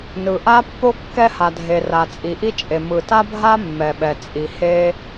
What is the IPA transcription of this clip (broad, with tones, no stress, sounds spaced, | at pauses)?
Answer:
n ɯ˩ ʔ a˥ pː o˥ kː ɛ˥ h a˩ dʱ e˩ r a˩ t͡sʼ i˩ ʔ i˥ t͡ʃʼ e˩ m ɯ˩ t a˥ bʱ a˥ mː ɛ˩ ɓ ɛ˩ t͡sʼ i˩ h e˥